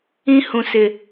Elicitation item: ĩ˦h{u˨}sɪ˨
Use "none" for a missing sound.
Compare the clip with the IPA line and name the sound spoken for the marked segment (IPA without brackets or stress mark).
ũ˨